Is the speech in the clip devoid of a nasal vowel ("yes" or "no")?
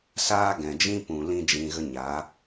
no